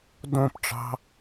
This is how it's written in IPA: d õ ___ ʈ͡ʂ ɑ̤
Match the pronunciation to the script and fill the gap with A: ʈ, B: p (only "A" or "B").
B